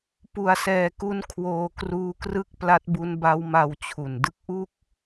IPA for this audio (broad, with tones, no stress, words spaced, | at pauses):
pu˧a̯sɛː˧ku˦˥n kʰwoː˧kruː˦˥krɯ˥˩k̚ pla˦˥t̚bu˦˥nba˦˥w ma˧wt͡ɕʰu˨˩n dɯ˦˥k̚ʔu˥˩k̚